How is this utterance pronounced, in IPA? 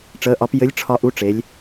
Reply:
ʈ͡ʂ əː˧˥ ʔ ɒ˧˥ p j ɘ˧˥ lʲ ʈ͡ʂʰ ɒ˧ ʔ u˧˥ ʈ͡ʂ e˩˧ lʲ

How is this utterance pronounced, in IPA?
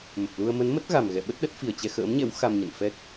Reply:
m ə˨˩ p̚ l u˧ ə̯ m ə˨˦ n m ə˦˥ t̚ ɣ a˨˩ m ɣ ɛ̰˧˨ ɓ ə˦˥ t̚ ɗ ə˦˥ t̚ f i˧˩ ə̯ t͡ɕ ɛ˧ x ə̰ː˧˥ m ɲ ɛ̰˧˥ w x a˧ m ɲ ə̰˧˨ n f ɛ˦˥ k̚

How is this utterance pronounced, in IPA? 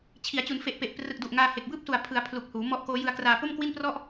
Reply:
t͡ɕʰ i˩˦ a̯ t͡ɕ u˩˦ n f e˨˩ ʔ p e˨˩ ʔ p r ɯ˨˩ k̚ d u˨˩ ʔ ŋ aː˧ h e˨˩ k̚ b ɯː˥˩ p̚ s u˨˩ a̯ pʰ ɯ˩˦ a̯ pʰ l u˨˩ k̚ h uː˩˦ m ɔ˦˥ ʔ k oː˦˥ j ɯ˧ a̯ k r aː˧ p o˥˩ m k w i˥˩ n p r ɔ˥˩ ʔ

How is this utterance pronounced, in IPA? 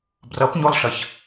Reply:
b r ʌ p ɲ o lˠ ɬ ʌ ç

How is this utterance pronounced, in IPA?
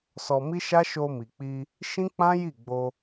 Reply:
s ɔ˧ m i˦ ʃ a˦ ʃ o˧ m i˨ k͡p i˧ | ʃ ĩ˦ k͡p ã˦ j i˦˨ ɡ͡b o˧

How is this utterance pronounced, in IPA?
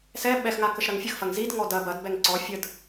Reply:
s ɛ ɓ ɛ x ŋ a k ə ʃ ɾ ɐ ŋ fʲ ə x f ɐ ŋ z i d ŋ ɔ d ɐ b ɐ d b ɛ ŋ ǀ ɔ fʲ ə d

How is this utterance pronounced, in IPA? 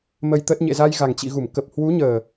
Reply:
m ə˧ j t̪ əː˦˥ t̚ ɲ ḛ˧˨ z a˧ j ɣ a˨˩ ŋ t͡ɕ ḭ˧˨ ɣ u˧˩ m k ə˨˩ p̚ h w u˨˦ ɲ əː˨˩

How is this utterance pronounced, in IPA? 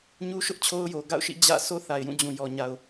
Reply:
ɲ u˦ ʃ ʊ˦ ʔ t͡ɕʰ o˦ ʊ̯ j o˨ ɡ a̰˦˨ ʊ̯ ʃ ḭ˦˨ d͡ʑ ä̰˦˨ s o˦ θ a˨ ɪ̯ j ũ˦˨ d͡ʑ ũ˨ j ɔ˨ ɲ a˨ ʊ̯

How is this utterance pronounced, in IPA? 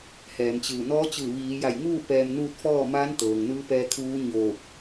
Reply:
h ɛː˩˧ m t͡ɕ ɯː˧˩ n ɔː˧˥ t͡ɕ ɯː˧˩ ʋ iː˩˧ j a˧˩ j ŋ uː˥˨ p ɛː˧ m n uː˥˨ t̚ f ɔː˥˨ m aː˧˥ n t̪ ɤː˩ ŋ n ɯː˧˥ p ɛː˧ kʰ uː˧˥ ɲ oː˧˩ k̚

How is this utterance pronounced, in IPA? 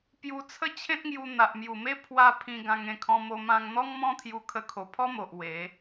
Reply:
p j u˧ t͡sʰ ə˦ t͡ɕʰ ẽ˦ t̚ ŋ j u˧ n̪ a˨ ʔ m j u˨˩ m e˦ pʰ w a˧ pʰ ĩ˧ ɡ ã˧ ŋ ẽ˧ kʰ ɔ̃˧ m o˧ m ã˧ ŋ n̪ ɔ˦ ŋ m ɔ̃˦ t̪ʰ j u˧ kʰ ə˧ kʰ o˨˩ pʰ ɔ˦ m o˨ ʔ w e˨˦

